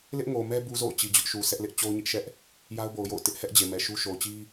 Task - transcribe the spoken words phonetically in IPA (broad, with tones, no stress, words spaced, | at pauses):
lɪ˦ʔŋo˨mɛ˦ bu˦zo̰˦˨ʊ̯t͡ɕi˨ d͡ʑʊ˦ʔ ʃu˨ sʰɛ˦ʔlɪ˦ʔ t͡ɕo˦ʊ̯ɲɪ˦ʔʃɛ˦ʔ | ja˦ʊ̯bo˨ʊ̯ jo̰˦˨ʊ̯tɪ˦ʔhɛ˦ʔ d͡ʑe˨mɛ˨ʃu˦ ʃo˨ʊ̯t͡ɕi˦